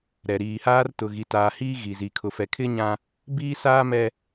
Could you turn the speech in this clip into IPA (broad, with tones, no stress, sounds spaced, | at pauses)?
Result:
ɾ ɛ˨ ɾ iː˨ h aː˦ r t ʊ˨ ɣ i˨ t aː˨ h iː˦ ɣ i˨ z i˨ kʰ ʊ˨ f ɛ˨ kʰ ɪ˦ ɲ ã˦ | b iː˦ s aː˦ m ɛ˦